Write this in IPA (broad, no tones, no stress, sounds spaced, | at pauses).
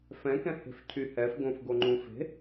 f ɛ̃ k ɛ̃ h e̤ f cʰ y h ɛ f ɡ õ f ɡ o ŋ͡ǃ ũ f e̤